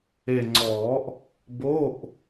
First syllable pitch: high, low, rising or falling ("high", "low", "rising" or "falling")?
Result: low